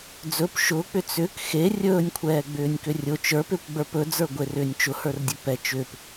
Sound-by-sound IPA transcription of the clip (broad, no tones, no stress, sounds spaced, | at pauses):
d͡z ɵ p ʃ ʊː k͡p ʏ t͡s ʏ k x e rʲ ɵː nʲ kʷʰ ɛː ɡ͡b ʏː nʲ k ʏ rʲ ʊ t͡ʃ ə˞ p ʏː kʷ ɡ͡b ə˞ p ɵ d͡z ə˞ ɡʷ e r ʏː nʲ t͡ʃ ʊ h ə˞ r dʲ ɵ p ɛ t͡ʃ ʏː p